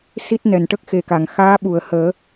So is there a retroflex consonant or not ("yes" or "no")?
yes